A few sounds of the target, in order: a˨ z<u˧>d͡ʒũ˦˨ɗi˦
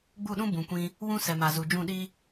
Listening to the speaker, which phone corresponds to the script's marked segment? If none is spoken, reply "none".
u˨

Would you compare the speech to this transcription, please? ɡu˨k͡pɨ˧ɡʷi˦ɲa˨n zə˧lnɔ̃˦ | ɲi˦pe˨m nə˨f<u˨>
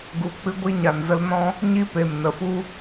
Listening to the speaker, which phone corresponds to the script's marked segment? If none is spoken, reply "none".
u˦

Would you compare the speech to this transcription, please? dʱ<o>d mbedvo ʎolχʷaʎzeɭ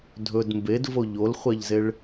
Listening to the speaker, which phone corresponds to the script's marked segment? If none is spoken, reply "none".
ɵ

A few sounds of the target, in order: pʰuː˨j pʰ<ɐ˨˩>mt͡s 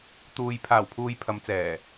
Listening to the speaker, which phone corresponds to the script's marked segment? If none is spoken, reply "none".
ɐ˨˧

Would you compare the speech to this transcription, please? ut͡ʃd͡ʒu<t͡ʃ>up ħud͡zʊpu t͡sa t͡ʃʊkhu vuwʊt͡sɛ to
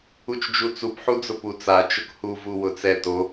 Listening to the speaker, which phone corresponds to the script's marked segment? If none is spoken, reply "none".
t͡s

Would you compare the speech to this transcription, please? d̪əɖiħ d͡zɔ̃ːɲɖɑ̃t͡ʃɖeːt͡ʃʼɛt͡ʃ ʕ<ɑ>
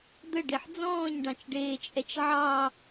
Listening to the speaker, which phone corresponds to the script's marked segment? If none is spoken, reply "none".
ɑ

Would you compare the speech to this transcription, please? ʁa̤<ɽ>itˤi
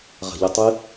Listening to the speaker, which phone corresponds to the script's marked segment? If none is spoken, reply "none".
ʎ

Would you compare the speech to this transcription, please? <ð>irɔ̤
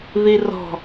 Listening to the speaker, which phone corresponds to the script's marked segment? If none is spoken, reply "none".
ð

